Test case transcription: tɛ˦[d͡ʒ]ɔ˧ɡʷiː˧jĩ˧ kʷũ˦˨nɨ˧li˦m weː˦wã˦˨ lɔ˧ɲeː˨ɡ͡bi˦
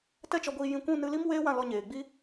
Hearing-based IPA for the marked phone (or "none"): t͡ʃ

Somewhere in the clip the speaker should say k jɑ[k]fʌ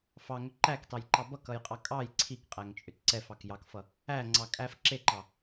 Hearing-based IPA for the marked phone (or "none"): k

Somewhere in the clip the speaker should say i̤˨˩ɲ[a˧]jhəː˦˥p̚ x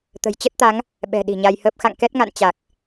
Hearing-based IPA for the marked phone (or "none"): a˧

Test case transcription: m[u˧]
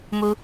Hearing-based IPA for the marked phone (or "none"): u˧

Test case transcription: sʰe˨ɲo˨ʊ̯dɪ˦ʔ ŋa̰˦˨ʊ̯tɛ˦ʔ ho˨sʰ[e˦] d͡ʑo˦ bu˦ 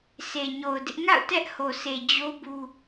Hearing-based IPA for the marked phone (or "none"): e˨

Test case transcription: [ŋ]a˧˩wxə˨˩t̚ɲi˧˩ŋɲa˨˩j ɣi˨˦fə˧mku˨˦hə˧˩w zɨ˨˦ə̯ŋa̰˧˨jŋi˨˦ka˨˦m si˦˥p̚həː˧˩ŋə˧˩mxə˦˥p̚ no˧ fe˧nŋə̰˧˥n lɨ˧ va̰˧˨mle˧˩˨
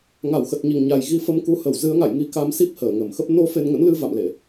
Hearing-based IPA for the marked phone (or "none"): ŋ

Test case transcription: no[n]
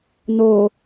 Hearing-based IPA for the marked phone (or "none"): none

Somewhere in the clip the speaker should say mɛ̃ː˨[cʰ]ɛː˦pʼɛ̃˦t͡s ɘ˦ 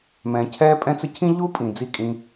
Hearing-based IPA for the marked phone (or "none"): cʰ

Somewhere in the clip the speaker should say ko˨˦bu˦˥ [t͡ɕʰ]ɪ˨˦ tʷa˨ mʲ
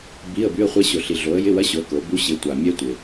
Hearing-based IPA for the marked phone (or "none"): ɕ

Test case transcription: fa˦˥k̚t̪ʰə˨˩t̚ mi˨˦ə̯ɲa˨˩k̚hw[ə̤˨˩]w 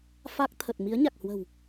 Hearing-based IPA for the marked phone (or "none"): ə̤˨˩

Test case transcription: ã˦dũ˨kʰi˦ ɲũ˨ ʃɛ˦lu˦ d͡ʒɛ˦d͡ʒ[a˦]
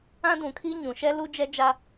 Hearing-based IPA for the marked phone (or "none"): a˦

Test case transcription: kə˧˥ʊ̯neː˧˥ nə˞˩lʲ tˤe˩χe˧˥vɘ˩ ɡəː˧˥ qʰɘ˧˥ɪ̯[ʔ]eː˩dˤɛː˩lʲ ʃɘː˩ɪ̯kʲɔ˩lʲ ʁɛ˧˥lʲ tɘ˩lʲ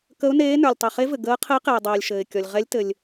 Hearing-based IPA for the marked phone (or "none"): q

